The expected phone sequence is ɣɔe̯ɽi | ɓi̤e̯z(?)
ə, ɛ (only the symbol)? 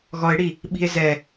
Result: ɛ